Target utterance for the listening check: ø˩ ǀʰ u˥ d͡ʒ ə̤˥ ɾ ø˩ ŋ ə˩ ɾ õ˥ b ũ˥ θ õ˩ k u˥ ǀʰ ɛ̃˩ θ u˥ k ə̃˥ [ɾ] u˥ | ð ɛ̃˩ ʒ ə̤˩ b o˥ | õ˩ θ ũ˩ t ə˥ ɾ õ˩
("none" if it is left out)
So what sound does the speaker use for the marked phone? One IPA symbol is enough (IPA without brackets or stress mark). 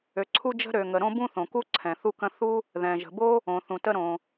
θ